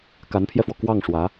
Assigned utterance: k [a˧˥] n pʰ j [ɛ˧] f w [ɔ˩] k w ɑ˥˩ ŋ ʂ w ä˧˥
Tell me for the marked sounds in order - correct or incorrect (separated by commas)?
correct, correct, correct